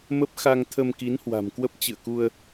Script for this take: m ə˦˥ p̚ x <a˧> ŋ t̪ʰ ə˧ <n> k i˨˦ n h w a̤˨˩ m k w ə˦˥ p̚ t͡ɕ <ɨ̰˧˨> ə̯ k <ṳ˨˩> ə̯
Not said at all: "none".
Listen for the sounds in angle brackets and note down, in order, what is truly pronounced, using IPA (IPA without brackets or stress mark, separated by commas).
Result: a˧, m, ɨ̰˧˨, u˧